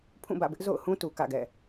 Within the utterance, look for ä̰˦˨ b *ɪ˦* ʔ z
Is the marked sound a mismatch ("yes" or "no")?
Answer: no